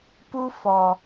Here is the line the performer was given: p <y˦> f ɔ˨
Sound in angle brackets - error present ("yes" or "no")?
yes